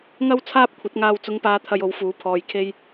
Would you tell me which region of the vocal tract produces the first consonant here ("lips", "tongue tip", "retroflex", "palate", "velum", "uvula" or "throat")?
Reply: velum